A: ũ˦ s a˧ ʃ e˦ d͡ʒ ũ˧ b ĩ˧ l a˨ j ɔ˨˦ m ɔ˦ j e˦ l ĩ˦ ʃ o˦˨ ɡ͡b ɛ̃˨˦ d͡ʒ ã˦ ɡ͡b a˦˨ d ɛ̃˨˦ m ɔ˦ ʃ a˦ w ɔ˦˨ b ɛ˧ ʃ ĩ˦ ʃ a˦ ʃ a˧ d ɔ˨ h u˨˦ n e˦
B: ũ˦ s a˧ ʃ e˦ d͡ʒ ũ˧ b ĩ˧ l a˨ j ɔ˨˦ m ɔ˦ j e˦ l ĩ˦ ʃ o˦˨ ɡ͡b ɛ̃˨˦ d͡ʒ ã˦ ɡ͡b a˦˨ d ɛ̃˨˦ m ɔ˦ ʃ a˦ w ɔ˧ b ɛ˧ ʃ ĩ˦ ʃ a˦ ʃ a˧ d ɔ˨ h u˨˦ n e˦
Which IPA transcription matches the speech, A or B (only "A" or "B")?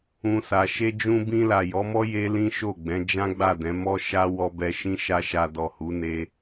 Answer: B